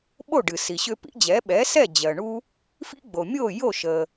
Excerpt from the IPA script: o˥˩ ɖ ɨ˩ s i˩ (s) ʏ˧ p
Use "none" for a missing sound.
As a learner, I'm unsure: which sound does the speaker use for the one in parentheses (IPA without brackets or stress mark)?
ɕ